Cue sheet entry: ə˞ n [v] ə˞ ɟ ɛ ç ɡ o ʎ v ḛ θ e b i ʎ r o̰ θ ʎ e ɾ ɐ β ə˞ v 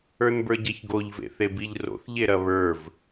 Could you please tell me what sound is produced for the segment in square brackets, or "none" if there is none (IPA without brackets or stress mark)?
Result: b